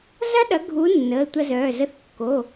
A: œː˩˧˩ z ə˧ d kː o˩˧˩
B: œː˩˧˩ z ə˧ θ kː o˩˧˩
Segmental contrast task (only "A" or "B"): B